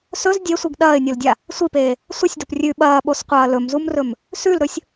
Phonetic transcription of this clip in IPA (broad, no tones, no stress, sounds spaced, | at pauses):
s ɵ z dʲ e sʷ i ɡ ɗ ɐː ɪ̯ nʲ o l dʲ a | sʷ i p eː | sʷ ɐ sʲ d o p rʲ ʉ ɓ ɐː ɓ o s qʷ ɐː l ɵ m z u m r ɵ m | s ʉ l ɾ ɵ sʲ